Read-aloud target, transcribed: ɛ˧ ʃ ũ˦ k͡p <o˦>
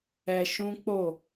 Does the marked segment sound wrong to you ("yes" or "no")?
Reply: yes